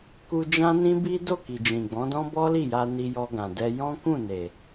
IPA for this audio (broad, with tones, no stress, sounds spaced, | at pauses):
k u˧ d͡ʒ ã˦ n ĩ˦ b i˦ d o˦˨ k i˨ d͡ʒ ĩ˨ ɡ͡b ɔ̃˨˦ d ɔ̃˦ b ɔ˦ l i˦˨ j a˧ n i˧ j ɔ˧ ɡ ã˨ d ɛ˧ j ɔ̃˦ k ũ˦˨ n e˨